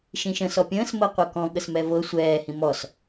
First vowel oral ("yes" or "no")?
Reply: no